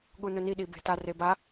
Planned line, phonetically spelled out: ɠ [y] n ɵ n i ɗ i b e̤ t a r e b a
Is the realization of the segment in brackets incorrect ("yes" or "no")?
yes